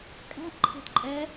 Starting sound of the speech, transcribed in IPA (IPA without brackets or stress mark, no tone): kʼ